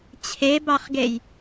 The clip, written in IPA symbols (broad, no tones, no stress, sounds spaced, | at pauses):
t͡ɕʰ e b ɑ χ ɡ e j